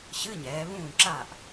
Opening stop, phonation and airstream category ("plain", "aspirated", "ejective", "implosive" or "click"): click